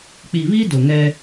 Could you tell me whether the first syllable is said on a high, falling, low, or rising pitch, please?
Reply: low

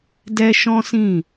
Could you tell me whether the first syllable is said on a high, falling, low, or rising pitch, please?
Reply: high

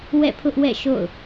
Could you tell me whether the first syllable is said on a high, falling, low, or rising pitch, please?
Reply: falling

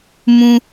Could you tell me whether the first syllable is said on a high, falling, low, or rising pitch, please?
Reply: high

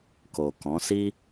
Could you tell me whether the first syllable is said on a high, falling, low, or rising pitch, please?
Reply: low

